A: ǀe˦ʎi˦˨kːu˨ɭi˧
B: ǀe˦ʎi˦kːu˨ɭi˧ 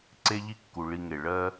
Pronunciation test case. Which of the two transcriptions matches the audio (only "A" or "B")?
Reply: B